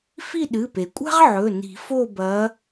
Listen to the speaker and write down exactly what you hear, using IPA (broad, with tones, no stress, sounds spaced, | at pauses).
f i˦˨ ɗ ɨ˩˧˩ p e˩ kʷʼ a̤˦ ʁ ʕ ɵ˩˧˩ n i̤˨˩˦ f o˦˨ b ɐ˨˦